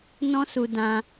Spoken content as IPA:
n ɔ̃˦ s u˧ d ã˧

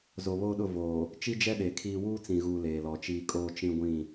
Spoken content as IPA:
z o˨ β oː˦ ɗ ʊ˦˨ v oː˨ | t͡ʃ i˦ d͡ʒ ɛ˦ ɗ e˨ kʰ iː˦ w uː˦ t͡s ĩ˨ ɣ uː˨ l eː˨ l ɔ˨ t͡ʃ iː˦ kʼ oː˦ t͡ʃ ĩ˦ ɡʷ ĩ˦˨

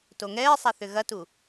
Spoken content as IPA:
t o ŋ ɛː sˤ a θ ʏ ɣ ɐ t u

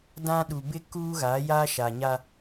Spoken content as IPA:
d ã˦ ɗ u˨ b ɪ˦ k uː˦ ɣ a˨˦ j a˦ ʃ a˨ ɲ a˦

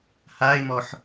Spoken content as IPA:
h a ɪ̯ m ɔ ħ

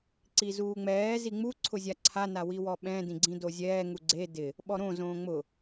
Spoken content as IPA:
ǀ i z uː ŋ͡m ɛː z i ŋ͡m u ǀʰ ʊ zʲ a ǀʰ a n a w i w ɔ ɓ ɛ̃ d ĩ ɡ͡ǀ ĩ d o zʲ ɛː ŋ u ɡ͡ǀ e d ɪ | ɓ ɔ ɾ õ z õː ŋ͡m ʊ

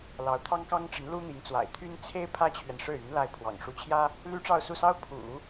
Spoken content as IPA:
l ɑ˧˥ ʊ̯ t̪ʰ ɑ˥ ŋ k ɑ˥ ŋ ʈ͡ʂ ə˧˥ n l u˥ n̪ i˧˥ ŋ t͡s w a̰˨˩ ɪ̯ t̪ʰ y˥ n t͡sʰ e˥ ɪ̯ pʰ ä˥ t͡ɕʰ ɥ ɛ˨ n ʂ ɻ̩˥˩ y˧˥ n l a˥˩ ɪ̯ pʰ w ɑ̰˨˩ ŋ ʂ u˧˥ t͡ɕʰ j ä˥ | l y˥ ʈ͡ʂ ɑ˥˧ ʊ̯ s u˥˩ s ɑ˥ ʊ̯ pʰ ṵ˨˩˦

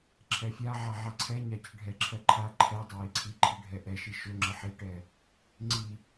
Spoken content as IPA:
ǁʰ ɛ fʲ a ʕ a ʕ a ǀʰ ɛ ɲ a c ə ɖʱ ɛ ǁʰ ɜ ǃʰ a ǃʰ ɛ dˤ ə j i ǀʰ i ǃʰ i ɖʱ ɛ ʔ ɛ ʃ i ʃ ɵ ŋ͡ǁ ə ħ i ʈ ɛ | ŋ͡ǀ i

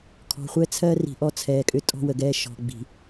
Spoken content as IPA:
kʰ ɔ̤˨ χʷ ɛ˦ t͡sʰ ɜ˦ r i̤˨ ʔ ɔ˦ t͡sʰ ɛː˨ kʼ ʏ˦ tʼ ɔ̤˦ w ə˨ ɡ ɛː˦ ʃ ɔ̤˨ ɡ͡b i̤˨

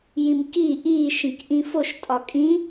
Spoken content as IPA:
j ĩ m k i ʔ iː ʃ ĩ k ʔ ĩ f o ʃ tʼ ɒ kʼ ĩ

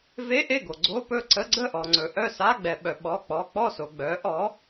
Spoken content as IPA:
v e˧˥˧ ʔ e˥˩ ɡ o˩ ɡ͡ǀ o˧˥˧ p ɵ˥˩ ǀ ə˧˥˧ ɡ͡ǀ ə˥˩ ʔ ɔ˩ ŋ͡ǀ ɵ˩ ʔ œ˥˩ s a˧˥˧ ɡ͡b ɛ˩ ɓ œ˩ ɓ ɔ˩˧˩ k͡p ɔ˩˧˩ k͡p ɔ˥˩ s o˩ ɡ͡b œ˩˥ ʔ ɔ˩˥

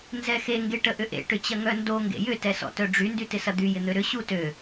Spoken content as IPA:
n z ɛ x e ŋ ɡ e ʈ ə ʔ ʏ ʔ ḛ ʈ ʏ t͡ɕ ɐ ŋ œ n d o ŋ ɡ ḛ j ʏ t ɛ s ɔ̰ t œ ɖ͡ʐ y n d y t ɪ s ɐ d̪ y j ɪ n̪ ø ɾ ʏ ɕ u t ø

